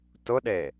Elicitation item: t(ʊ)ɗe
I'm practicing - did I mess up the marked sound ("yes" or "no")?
no